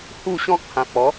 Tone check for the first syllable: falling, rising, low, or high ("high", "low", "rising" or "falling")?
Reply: falling